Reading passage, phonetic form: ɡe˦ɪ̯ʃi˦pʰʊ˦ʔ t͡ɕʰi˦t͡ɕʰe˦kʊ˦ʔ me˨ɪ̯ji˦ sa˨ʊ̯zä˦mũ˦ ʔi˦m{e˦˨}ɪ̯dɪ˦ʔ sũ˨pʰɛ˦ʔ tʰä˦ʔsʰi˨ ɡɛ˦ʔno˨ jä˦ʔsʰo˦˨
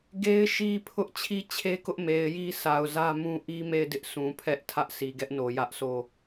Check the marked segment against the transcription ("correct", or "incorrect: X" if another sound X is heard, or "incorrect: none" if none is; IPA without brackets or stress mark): correct